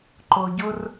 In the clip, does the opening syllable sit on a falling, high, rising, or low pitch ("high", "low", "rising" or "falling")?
high